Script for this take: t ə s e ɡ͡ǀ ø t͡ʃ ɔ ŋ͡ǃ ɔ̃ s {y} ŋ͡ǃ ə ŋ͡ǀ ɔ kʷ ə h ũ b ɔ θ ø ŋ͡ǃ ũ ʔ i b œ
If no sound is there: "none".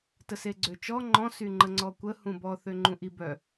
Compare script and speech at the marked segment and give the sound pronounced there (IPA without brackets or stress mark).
y